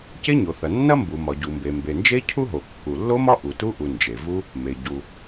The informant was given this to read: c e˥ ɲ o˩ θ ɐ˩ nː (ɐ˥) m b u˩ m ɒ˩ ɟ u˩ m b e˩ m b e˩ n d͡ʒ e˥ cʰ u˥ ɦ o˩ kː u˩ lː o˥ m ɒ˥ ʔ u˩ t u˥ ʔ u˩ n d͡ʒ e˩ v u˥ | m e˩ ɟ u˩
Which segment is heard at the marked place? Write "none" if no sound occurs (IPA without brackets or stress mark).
ɐ˥